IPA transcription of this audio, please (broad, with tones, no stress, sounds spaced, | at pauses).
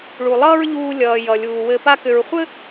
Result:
ɭ u˩ lˠ ʌː˥ ɹ ʎ uː˧ lʲ ʌː˩ j ʌ˩ lʲ uː˩ w ɘ˧ p a˥ k ʏ˧ ɹ χʷ ɘ˥